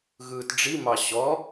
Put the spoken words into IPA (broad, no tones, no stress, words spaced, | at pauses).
ɣɯːtɖ͡ʐimɑ ɕɔ